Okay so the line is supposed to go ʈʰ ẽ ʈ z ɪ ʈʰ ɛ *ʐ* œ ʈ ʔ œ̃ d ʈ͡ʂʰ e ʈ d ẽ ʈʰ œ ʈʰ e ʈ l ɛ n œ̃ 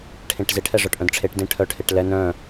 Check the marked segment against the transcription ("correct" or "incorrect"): correct